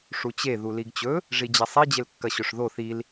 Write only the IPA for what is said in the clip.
ʂut͡ɕe ðuliɡt͡ɕɵ | ʐid͡ʑɐsˤi d͡ʑelkːɐɕɵʂðo θil

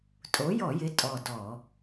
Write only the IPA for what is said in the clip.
tʼo˨˥jɔ˧˩˧jɪ˨˥ tʼɔ˧˩dɔ˧˩˧

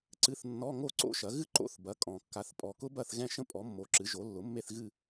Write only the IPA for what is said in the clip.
ǀɨ˧˥˧θnːɔ˧˥˧ ŋo˥˨ǀo̰˥ʃɐ˩˥ ɣɨ˥ ǃo̰˧˥˧θ bɐ˩˥ kʼɔ̃˨˩ kːa˩˥θpʼɔ˨˩ kʊ˥ bɐ˥˨θɣɛ̃˥˨ʃə̃˥ pʼɔ˩˥ mːo˨˩ǁɨ˩˥ ʒo˩˥ lːʊ˩˥mːe˥˨θɣɨ˥˨

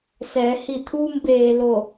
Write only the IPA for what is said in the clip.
sɛː˩˧hi˧˩ t̪ʰuː˧mbeː˩ lo˧˩

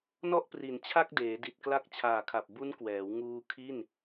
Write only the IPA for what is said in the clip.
nɔ˥˩ʔpri˨˩n t͡ɕʰa˥˩k̚deː˩˦di˨˩t̚kla˦˥k̚ t͡ɕʰaː˨˩kʰa˨˩p̚ bu˦˥nkwɛː˩˦w ŋuː˧ kʰi˥˩n

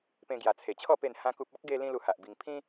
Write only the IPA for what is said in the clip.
pẽ˧ɡja˨˩t͡sʰe˨˩t͡ɕʰɔ˥˧ pe˥˧nhã˦ku˦p̚ ɔ˦k̚ɡe˧ lĩ˦lu˧ha˨ʔbi˧ŋ pʰĩ˦

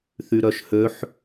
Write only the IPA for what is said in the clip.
θyɾœʃhøħ

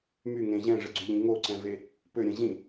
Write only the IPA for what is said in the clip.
myŋẽ ʑɛ̃ʐɘɡ͡ǀyʎĩ ŋoǀɛ̃ve | pøɾʲɛ̃ ʑĩ

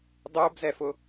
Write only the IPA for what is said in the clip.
dˤʊːbzɛfʊ

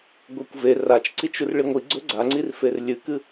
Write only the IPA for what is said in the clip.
ɡʷekʷve rat͡ʃǀit͡ʃ urɭiŋʷi ɡ͡ǀɵɡ͡ǀaŋ͡ǀir ferlʲɨkɨ

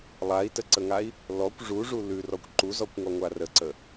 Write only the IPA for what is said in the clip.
lˠai̯təǀəŋai̯ | lɔkʷ ʐuʐu lʉrɔkʷ ǃuzɔkʷŋɔŋʷa rəǀə

